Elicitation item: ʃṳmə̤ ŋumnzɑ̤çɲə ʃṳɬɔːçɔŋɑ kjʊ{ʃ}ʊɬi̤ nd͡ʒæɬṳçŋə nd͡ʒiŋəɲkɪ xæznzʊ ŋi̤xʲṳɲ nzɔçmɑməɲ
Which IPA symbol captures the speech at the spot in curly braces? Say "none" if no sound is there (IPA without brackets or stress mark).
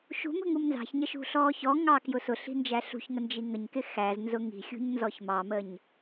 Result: s